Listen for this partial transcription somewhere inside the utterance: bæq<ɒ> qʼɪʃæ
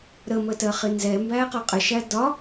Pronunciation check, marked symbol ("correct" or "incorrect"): correct